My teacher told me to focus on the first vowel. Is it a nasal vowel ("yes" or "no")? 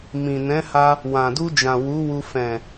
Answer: yes